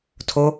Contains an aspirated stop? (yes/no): yes